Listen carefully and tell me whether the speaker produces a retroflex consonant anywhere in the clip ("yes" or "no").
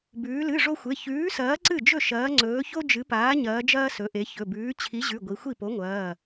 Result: yes